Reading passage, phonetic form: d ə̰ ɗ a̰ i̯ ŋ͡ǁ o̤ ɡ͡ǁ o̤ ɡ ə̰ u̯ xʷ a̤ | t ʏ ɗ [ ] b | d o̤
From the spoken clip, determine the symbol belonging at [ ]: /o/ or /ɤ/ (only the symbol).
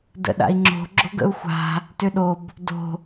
o